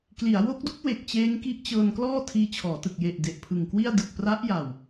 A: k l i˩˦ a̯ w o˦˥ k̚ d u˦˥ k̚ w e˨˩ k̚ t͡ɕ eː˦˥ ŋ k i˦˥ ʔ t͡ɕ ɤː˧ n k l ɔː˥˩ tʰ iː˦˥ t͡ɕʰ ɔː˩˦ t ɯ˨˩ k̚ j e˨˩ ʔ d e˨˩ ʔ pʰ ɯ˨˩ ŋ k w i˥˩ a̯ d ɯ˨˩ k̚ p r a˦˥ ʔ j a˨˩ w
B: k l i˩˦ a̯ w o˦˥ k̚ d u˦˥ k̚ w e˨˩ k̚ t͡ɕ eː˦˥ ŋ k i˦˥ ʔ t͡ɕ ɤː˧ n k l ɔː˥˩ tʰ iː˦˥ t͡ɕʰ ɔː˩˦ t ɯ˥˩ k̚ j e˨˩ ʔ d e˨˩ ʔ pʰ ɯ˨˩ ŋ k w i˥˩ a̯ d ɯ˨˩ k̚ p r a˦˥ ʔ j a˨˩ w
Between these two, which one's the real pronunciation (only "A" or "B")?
A